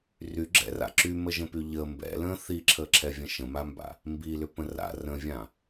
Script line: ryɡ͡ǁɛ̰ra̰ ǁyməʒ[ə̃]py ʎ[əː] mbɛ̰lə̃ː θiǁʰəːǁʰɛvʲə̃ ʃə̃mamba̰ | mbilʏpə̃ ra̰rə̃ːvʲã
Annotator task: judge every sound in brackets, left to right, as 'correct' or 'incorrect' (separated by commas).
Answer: correct, correct